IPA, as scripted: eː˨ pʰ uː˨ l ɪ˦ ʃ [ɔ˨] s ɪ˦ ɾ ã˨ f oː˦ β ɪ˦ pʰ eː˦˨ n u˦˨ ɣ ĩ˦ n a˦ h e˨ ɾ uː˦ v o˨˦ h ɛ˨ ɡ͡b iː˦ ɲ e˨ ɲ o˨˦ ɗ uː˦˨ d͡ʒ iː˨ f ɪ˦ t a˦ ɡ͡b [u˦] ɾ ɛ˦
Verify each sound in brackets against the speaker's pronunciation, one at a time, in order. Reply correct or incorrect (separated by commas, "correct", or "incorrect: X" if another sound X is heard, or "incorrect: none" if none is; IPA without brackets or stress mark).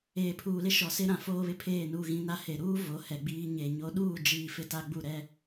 correct, incorrect: u˦˨